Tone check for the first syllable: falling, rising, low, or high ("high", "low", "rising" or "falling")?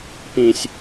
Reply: low